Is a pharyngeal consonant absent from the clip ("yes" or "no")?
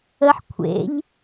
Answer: no